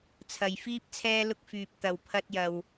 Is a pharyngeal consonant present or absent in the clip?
absent